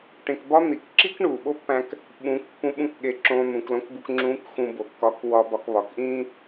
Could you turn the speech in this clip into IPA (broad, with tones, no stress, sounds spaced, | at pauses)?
ʈ ẽ˧ k b ɒ˥ n̪ i˩˧ k ǁ i˥ k ɳ uː˩ ɓ o˥ pː æ̃ː˧ k | ɓ ũː˧˥ k pː ũ˧˥ ɓ ũ˧˥ k ɠ e˧ ǁ õː˧ n̪ ũ˩˧ k l õ˧˥ k b u˧ k ŋ͡ǁ ũː˧˥ k x ũ˧ b o˩˧ kː ɒ˧˥ k w ɒ˧ b ɒ˧ k β ɒ˩ k ʔ ĩː˥